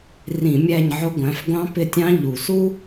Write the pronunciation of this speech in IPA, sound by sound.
r ĩ˧˩˧ mʲ æ˦˨ ɲ ʕ ʊ˧˥ ɡʷ æ̃˩˥ f ɡʷ ɑ̃˧˥ p ɪ˦˨ tʲ ɑ̃˧˥ ʎ u˨˩ s u˥

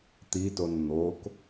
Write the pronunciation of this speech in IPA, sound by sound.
t̪ i t o n n̪ o k

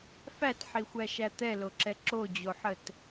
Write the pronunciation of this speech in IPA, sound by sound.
f æ t ħ i xʷ æ ʃ æ t̪ ɛ l o ǁ ɛ ǁ o d͡ʑ o ħ ə t

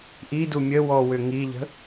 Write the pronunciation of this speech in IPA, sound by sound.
ʔ i d u mʲ ə w ɔ w ʏ ŋ i ʎ ə̤

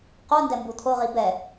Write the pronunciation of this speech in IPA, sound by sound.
q o n d ɛ m b u t̪ʰ o ʁ i b ɛ

